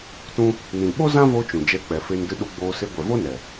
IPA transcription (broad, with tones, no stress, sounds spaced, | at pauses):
t ũ˦ | n ĩ˨ ɓ o˦ z ã˦ v o˧ t͡ʃ ũ˨ d͡ʒ ɛ˧ k͡p ɛ˨ f e˧ n d ɨ˧ ɗ u˧ ɡ͡b oː˧ s e˧ ɡʷ ɛ˨ v o˦ n ɛ˨